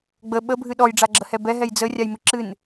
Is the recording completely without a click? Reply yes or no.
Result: no